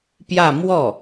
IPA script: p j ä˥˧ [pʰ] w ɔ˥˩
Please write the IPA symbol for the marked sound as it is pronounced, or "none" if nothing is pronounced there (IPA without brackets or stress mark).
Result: m